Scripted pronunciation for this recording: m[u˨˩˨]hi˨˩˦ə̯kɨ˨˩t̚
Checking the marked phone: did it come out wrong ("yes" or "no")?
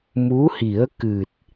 yes